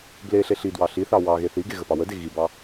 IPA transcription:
ble ɬeɬidwɑ ɬiθɑ wɑɣe θiɡe ɣəpɑwəde ɣibɑ

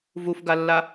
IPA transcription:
vufɡalːa

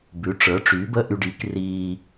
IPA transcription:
bʉ˩˥ʈ͡ʂə˞˩˥ʈ͡ʂy˩˥bə˧˥˧ ʔy˨ɖi˩˥kriː˨

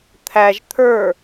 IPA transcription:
t̪ʰæʒ t̪ʰə˞

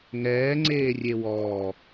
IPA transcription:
ŋɛːŋ͡ǀeː rʲewɔː

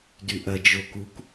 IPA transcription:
dyʔɐ d͡ʒokuk

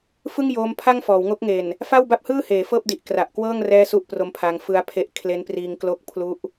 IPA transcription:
fɯ˥˩ŋjoː˧m pʰa˥˩ŋfɔː˩˦wŋo˦˥k̚ŋe˨˩n | fa˥˩wba˥˩p̚hɯː˥˩heː˩˦ fɤː˥˩p̚di˨˩ʔ kra˨˩ʔkwɤː˥˩ŋ rɛː˥˩su˥˩ʔpro˦˥mpʰa˧ŋ fɯ˦˥a̯pʰe˦˥ʔ kʰle˦˥npriː˧ŋ klo˦˥k̚ pʰlu˦˥ʔ

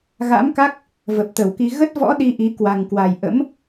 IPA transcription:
ɣa̰˧˥mka˦˥k̚ | və˨˩p̚t̪ə˧˩wki˧ ɣə˦˥t̚vɔ̰˧˥ ɗi˧ʔi˨˦ kwa˨˩ŋkwa˨˩j ʔə̰˧˥m

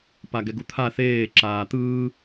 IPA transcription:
paɡɛɡut̪ʰa θeː ǁaːt̪ɯː

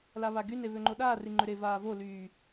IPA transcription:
laβaɡyne βøŋ͡ǃoɗaː riŋ͡ǃøɾe vaːvo lyː

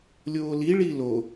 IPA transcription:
lʲoːli ɭilo

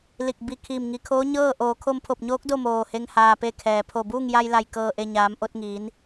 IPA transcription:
li˧˩k̚ bi˧˩ kʰiː˧˩mŋi˩˧kʰoː˧˥ ɲɤː˥˨ ʔoː˩˧kʰo˧mpʰo˧˩p̚ɲoː˧˥k̚ do˥˨moː˧˩he˧ŋ haː˩pe˧˩ kʰɛː˩pʰo˧˩buː˥˨ŋ ja˧jla˧˩jkɤː˧˩ʔe˧˩ ɲaː˩˧mʔo˧t̚ŋiː˩˧n

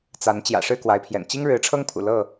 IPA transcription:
t͡sa˨˦n t͡ɕjä̰˨˩ʂɻ̩˥˨ kwa˨˦ɪ̯pʰjɛ̰˨˩n t͡ɕi˦ŋɻɻ̩˨˦ʈ͡ʂʰɤ˦ŋpʰṵ˨˩ lɤ˥˨

